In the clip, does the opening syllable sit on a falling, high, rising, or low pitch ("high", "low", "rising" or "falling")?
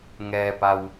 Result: low